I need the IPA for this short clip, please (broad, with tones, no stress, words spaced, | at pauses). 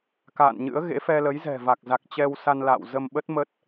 ka̰ː˧˨nɲɨ̰˧˥ə̯ɣḛ˧˥ fɛ˧lə˨˦jzɛ̤˨˩va˨˩k̚ za˨˩k̚ t͡ɕɛ˧wsa˧nla̰ː˧˨w zə˧mɓə˦˥t̚ mə˦˥t̚